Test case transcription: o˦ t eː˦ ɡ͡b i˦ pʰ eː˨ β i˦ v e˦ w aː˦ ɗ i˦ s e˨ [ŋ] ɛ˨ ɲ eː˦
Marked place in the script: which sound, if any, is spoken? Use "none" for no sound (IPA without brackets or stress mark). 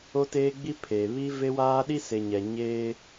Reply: ɲ